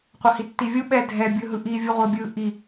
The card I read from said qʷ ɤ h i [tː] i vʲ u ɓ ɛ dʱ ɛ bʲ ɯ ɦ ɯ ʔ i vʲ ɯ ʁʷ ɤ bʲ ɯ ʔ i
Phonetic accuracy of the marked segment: correct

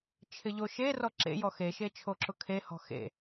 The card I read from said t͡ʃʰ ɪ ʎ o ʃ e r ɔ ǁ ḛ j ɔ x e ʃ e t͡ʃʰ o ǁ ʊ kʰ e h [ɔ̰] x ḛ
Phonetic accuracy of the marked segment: incorrect: ɔ̤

